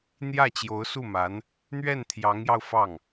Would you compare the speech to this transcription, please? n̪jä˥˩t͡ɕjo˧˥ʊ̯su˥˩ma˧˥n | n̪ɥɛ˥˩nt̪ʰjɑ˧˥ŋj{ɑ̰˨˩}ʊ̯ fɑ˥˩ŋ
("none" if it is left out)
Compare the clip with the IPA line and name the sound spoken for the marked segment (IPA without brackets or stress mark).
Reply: ɑ˧